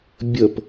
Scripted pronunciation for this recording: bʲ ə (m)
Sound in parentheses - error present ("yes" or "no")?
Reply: yes